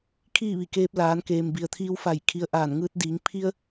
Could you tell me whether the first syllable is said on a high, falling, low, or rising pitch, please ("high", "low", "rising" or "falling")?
falling